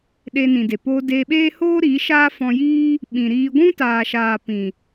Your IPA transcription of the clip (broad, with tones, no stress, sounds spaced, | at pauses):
ɗ e˧ n ĩ˨ d e˨ p oː˧ d eː˧ ɓ eː˦ h oː˦ ɾ iː˨˦ ʃ aː˦ f ɔ̃˧ j iː˦ | ɓ ĩ˨ ɾ iː˧ ɡʷ ũ˦ t aː˨ ʃ aː˨ p ĩ˨